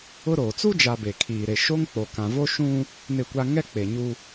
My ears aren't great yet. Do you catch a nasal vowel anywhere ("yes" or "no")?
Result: yes